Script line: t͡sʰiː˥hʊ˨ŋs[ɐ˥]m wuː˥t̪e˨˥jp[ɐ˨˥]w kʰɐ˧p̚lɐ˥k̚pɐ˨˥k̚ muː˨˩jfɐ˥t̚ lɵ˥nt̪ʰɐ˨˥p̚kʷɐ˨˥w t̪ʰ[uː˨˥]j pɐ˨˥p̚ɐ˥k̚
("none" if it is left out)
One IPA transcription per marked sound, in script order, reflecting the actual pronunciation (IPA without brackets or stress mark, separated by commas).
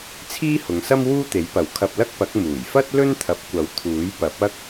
ɐ˥, ɐ˨˥, uː˨˥